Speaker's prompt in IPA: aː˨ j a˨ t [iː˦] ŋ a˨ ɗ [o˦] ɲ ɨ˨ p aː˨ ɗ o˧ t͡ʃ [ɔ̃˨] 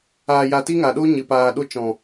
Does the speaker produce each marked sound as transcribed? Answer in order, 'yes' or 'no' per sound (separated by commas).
no, yes, yes